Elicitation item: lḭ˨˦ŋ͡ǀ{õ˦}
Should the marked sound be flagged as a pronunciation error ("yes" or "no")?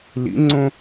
no